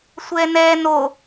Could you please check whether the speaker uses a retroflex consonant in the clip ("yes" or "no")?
no